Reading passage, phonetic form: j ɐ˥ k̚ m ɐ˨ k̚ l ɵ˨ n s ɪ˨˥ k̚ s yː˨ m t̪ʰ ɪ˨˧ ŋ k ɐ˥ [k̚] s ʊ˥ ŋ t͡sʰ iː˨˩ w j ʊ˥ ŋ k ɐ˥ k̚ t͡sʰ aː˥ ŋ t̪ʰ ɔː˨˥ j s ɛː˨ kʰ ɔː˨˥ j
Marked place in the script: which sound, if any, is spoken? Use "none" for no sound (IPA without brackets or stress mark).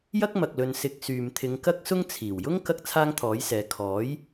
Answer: k̚